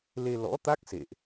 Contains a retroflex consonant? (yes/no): no